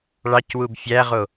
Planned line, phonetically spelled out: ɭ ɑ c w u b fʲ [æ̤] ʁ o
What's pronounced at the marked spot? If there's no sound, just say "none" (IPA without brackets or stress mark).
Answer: æ